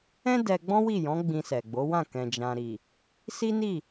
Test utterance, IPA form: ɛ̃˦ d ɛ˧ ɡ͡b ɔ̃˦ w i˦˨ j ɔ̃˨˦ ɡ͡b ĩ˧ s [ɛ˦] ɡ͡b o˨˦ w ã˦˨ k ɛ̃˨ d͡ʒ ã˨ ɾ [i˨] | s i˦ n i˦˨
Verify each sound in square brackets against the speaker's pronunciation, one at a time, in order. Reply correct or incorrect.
incorrect: ɛ˨, correct

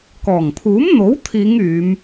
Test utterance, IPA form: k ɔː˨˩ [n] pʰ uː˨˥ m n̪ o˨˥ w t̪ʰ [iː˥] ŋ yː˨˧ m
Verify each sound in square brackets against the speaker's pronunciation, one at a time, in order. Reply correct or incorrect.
incorrect: ŋ, incorrect: iː˨˧

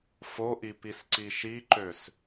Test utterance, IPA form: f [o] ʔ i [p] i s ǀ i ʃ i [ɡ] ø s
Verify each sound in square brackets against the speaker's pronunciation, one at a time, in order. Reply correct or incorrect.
correct, correct, incorrect: ǃ

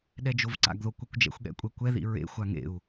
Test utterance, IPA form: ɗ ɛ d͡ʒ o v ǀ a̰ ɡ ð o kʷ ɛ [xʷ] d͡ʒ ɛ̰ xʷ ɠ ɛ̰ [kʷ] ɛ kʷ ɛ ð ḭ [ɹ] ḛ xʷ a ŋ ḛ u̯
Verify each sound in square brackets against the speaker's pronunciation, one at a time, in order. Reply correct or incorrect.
incorrect: kʷ, incorrect: kʷʼ, correct

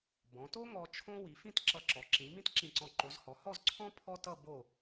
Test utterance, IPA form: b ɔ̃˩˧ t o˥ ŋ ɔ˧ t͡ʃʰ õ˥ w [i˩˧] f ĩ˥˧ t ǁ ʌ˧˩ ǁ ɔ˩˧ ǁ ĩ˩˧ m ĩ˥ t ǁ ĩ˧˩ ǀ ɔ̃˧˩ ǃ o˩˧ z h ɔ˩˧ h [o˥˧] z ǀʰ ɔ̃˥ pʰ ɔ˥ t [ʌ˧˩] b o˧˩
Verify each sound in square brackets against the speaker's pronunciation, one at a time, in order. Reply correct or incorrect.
correct, incorrect: ɔ˥˧, incorrect: ʌ˥˧

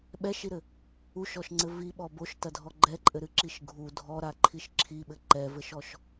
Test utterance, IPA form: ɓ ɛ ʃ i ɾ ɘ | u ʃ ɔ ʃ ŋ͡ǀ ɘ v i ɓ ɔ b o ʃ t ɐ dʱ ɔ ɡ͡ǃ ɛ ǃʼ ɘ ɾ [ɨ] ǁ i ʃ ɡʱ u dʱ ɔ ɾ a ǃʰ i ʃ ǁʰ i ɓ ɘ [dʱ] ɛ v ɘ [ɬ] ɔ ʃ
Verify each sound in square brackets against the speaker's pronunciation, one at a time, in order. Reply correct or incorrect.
correct, incorrect: ǃ, incorrect: ʃ

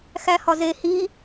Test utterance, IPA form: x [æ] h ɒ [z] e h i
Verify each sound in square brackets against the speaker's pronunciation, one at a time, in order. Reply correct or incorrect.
correct, correct

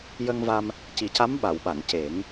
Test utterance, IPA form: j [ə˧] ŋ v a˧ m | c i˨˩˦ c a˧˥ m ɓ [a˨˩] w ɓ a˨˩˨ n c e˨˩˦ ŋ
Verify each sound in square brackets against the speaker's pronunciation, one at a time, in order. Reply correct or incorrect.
correct, incorrect: a˨˩˨

